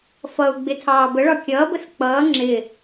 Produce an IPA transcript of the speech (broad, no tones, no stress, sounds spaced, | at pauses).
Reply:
f ʌ u̯ ɡ͡b ɪ tʰ ɑː b ə ɭ ɒ kʲ ʌː b ə s k͡p ʌː ŋ͡ǁ ɪ